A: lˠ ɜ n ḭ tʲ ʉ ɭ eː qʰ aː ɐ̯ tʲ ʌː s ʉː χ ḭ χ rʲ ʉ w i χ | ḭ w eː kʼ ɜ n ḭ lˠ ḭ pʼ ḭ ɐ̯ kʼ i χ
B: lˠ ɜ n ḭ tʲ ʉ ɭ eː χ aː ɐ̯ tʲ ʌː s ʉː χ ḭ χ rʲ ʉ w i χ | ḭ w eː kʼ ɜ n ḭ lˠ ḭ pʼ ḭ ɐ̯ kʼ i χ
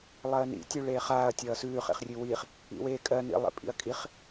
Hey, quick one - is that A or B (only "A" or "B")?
B